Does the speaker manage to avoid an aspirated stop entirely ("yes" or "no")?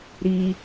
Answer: yes